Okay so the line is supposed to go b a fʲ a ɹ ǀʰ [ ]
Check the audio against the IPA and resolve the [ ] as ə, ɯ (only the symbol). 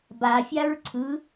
ɯ